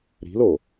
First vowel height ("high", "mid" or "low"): high